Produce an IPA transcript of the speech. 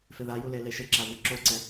f ɪ ð a j u l e l e ʃ ɪ ǁ a v i ǁ o ǀ ɛ

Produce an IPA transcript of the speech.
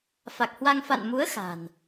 f a˨˩ k̚ h w a˧ ŋ f a̰˧˨ n m u˨˦ ə̯ x a̤˨˩ n

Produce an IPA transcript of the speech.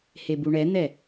h e b u ɳ ɛ n̪ ɛ

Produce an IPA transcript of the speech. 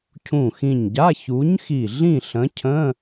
cʰ ũ˧˩ x ĩ˧˩ ɲ ɟ a˧˥˧ ç u˨˥ ɲ x i˧˩ ɮ ĩ˥˨ ɬ ə̃˨˥ cʰ ə̃˧˥˧

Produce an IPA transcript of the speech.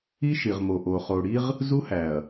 i˦ ʃ i˨ ʁ m o˨ ʔ o˨ χ o˨ ɽ i˦ ʁ | z u˦ h æ˨ ɐ̯

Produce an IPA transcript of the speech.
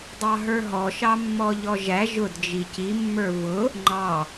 dˤ ɑ ɦ ə˞ ɦ ɔ ʃ ɑ mː ɔ ʎ ɔ ʒ æ ʒ ʊ d d͡ʒ i c i mː ə˞ v ʊ | ŋ͡ǃ ɑ

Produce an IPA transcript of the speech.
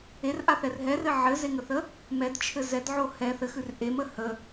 e r ʔ a θ ɛ r ɦ ɛ r ɘ ʕ ɘ z e ŋ ə θ ə | m ɛ d t͡ʃʰ ɘ z ɛ d ʕ o h ɛ θ ɘ x ʉ r ʔ e m ə h ə

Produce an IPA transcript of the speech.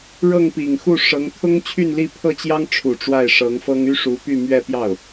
ɻ ɤ˥˩ ŋ p i˨˩ ŋ x u˥˩ ʂ ɤ˧˥ ŋ t̪ʰ ʊ˥ ŋ t͡ɕʰ y˥˧ n l i˥˧ pʰ ɤ˥˩ t͡ɕ j ɑ˥ ŋ ʈ͡ʂʰ u˨˩ ʈ͡ʂ w a˥˩ ɪ̯ ʂ ɤ˧˥ ŋ f ɤ˥ ŋ y˥ ʂ u˧˥ p y˥˧ m ɥ ɛ˥˧ p j ɑ˥˩ ʊ̯

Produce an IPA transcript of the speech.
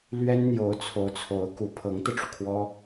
l ɥ ɛ˥ n n̪ j o˧˥ ʊ̯ t͡sʰ o˧˥ ʊ̯ t͡sʰ o˧˥ ʊ̯ k u˧˥ pʰ ɤ˧˥ ŋ t̪ ɤ˧ ʈ͡ʂ u˩ kʰ w ɔ˥

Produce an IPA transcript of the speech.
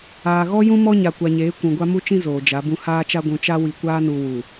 aː˨ ɣ ɔ˦ j ũ˦ m ɔ˦ ɲ a˨ kʷ a˨ ɲ eː˨˦ kʷ ũ˨ ɡʷ a˦ m u˦ t͡ʃ ĩ˦ z oː˨ d͡ʒ a˨˦ b ũ˦ h aː˦ t͡ʃ a˦ ɡʷ ũ˨ t͡ʃ a˦ w i˨ kʷ aː˦ n u˨ w u˨

